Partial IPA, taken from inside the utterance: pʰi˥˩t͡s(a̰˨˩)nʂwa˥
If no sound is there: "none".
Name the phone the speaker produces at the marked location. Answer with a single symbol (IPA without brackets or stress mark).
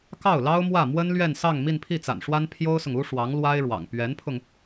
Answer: a̰˨˩